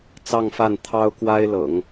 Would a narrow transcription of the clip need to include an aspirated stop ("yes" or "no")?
yes